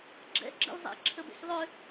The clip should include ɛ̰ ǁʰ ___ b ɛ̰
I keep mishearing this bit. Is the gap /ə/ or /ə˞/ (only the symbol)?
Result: ə